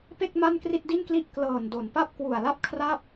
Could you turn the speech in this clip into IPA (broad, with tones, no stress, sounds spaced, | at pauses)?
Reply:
p e˥˩ k̚ m a˥˩ n k r i˥˩ t̚ d i˥˩ n k l i˥˩ ʔ k l ɤː˨˩ n d o˩˦ n p a˥˩ p̚ k w u˨˩ a̯ l a˥˩ p̚ kʰ r a˥˩ p̚